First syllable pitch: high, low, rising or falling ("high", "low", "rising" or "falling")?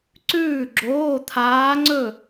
falling